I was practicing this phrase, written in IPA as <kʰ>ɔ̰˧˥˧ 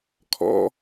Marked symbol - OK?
yes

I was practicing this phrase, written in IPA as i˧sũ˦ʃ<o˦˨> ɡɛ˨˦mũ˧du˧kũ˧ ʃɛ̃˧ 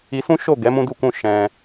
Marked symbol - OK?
yes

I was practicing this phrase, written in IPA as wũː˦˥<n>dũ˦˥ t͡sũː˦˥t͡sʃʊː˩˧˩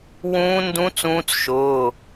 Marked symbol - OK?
yes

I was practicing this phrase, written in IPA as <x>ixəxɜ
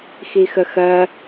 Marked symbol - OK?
yes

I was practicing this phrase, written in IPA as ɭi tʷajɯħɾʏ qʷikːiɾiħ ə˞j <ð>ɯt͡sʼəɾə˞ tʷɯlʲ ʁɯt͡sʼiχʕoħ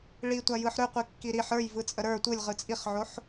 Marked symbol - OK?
no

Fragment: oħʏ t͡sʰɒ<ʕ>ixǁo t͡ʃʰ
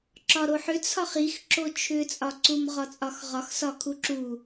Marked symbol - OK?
no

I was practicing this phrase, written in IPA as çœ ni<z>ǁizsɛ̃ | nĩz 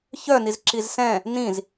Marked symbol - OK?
yes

